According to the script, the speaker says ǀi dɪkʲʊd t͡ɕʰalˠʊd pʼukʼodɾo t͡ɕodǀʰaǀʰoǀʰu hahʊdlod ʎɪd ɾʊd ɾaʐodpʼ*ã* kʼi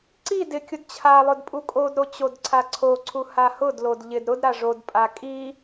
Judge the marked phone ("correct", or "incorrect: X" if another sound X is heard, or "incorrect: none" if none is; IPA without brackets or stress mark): incorrect: a